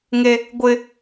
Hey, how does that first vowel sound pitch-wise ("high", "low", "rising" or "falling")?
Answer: high